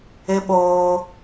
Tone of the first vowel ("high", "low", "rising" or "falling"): high